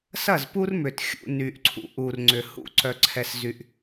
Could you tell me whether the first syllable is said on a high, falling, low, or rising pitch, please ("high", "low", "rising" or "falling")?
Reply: falling